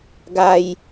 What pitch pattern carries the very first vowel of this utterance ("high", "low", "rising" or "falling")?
high